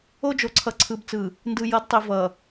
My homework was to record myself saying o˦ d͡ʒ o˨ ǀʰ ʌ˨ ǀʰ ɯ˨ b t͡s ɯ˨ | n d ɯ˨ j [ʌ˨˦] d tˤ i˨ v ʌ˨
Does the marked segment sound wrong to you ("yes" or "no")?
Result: no